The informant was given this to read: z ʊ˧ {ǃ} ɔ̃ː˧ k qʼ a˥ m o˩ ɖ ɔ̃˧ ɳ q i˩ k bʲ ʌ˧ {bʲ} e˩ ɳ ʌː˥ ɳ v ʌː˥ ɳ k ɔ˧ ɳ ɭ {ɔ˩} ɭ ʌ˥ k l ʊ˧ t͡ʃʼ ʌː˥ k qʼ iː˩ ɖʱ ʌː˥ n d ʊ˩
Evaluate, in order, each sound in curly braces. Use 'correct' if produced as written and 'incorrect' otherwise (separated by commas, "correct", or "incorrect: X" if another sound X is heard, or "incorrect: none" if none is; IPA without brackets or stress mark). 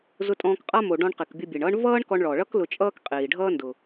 incorrect: tʼ, correct, correct